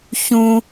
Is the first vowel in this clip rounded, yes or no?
yes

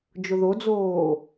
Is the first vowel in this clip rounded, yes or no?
yes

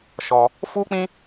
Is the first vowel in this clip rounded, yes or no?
yes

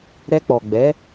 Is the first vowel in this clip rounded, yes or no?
no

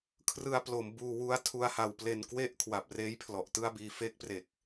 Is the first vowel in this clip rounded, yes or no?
no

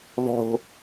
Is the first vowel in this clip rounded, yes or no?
yes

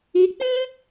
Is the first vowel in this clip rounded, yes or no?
no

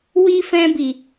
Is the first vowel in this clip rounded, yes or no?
no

